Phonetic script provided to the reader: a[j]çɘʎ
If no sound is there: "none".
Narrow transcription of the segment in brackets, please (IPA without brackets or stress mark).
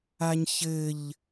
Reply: ɲ